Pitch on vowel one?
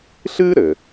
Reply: high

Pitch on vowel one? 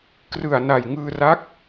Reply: low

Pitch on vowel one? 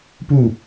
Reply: falling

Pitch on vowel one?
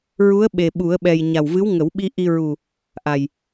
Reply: rising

